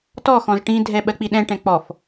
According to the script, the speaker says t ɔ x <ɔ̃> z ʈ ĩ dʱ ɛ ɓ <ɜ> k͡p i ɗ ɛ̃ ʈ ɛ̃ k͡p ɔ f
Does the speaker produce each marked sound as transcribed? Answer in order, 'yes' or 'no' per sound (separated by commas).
yes, yes